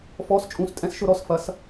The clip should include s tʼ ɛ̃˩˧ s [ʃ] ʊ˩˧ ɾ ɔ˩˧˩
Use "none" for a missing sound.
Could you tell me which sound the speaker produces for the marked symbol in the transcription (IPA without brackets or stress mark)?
ʃ